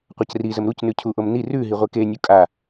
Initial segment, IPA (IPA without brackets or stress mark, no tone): qʷ